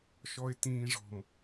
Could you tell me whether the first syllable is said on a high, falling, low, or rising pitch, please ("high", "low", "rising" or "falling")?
low